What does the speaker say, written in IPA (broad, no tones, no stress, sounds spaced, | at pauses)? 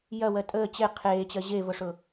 j ɐ w ɜ tʼ əː t͡ɕ e qʰ eː t͡ɕ ɜ ʑ e v ʊ ʂ ʊ